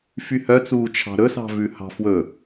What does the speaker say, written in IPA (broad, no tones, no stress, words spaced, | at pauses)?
fyhœt͡suː t͡ʃʰɑ̤ɾɵsɑ̤ vʉhɑ̤fwɵ